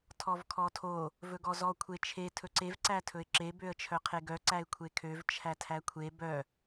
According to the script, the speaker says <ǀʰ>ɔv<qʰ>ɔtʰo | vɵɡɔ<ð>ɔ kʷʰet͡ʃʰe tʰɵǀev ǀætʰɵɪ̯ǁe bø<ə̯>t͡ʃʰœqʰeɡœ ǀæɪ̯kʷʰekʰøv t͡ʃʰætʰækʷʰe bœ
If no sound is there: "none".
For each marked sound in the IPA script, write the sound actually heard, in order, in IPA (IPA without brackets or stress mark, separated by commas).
tʰ, kʰ, z, ə̯